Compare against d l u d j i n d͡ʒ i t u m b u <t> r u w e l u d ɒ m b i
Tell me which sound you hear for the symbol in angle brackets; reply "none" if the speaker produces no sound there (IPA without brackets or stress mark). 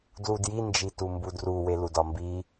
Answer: d